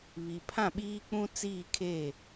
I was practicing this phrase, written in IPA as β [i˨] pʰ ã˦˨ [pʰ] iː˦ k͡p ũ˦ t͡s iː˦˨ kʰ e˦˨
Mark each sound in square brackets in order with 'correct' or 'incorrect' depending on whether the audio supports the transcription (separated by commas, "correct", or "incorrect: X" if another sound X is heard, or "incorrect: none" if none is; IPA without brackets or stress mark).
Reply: correct, incorrect: ɓ